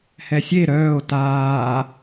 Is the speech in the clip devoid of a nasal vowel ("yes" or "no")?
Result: yes